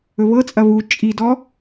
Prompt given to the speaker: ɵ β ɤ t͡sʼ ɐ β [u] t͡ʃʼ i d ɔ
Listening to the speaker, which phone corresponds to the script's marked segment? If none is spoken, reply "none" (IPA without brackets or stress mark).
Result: u